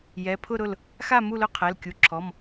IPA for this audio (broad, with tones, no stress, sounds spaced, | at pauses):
j ɛ˩˧˩ pʰ ʊ˥˨ ɾ ʊ˥˨ l | x a˥˨ m u˥˨ l ʊ˥˨ qʰ ɛ˩˧˩ l kʲ u˩˧˩ ǁʰ ɔ˩˧˩ m